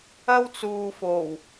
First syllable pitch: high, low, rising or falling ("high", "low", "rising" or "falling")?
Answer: high